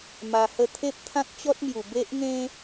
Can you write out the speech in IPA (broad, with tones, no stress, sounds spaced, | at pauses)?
m a˧ h ə˥˧ t̪ʰ e˦ p̚ t̪ʰ ã˦ k̚ t͡ɕ ɔ˦ t̚ m j u˨˩ b e˦ ʔ ŋ ẽ˦